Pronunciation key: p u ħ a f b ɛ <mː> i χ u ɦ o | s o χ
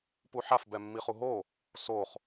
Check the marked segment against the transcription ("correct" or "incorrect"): correct